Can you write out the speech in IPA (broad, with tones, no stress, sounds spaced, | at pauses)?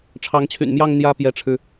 ʈ͡ʂʰ ɑ˧˥ ŋ t͡ɕʰ y̰˨˩ n m j ɑ˥˧ ŋ n̪ j ä˥˩ p j ɛ˧˥ ʈ͡ʂʰ ɻ̩˧